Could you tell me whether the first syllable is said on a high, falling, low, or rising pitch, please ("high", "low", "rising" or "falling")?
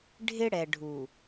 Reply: high